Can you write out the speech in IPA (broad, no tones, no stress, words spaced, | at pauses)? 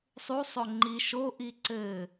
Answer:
sˤusˤo ŋ͡ǃi ʃoʔi ǀɘ